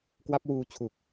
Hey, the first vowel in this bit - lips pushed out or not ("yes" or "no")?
no